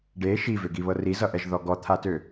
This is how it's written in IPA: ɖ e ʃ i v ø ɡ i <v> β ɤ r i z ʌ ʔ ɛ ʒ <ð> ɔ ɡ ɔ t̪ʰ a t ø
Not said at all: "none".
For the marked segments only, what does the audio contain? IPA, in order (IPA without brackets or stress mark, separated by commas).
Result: none, ð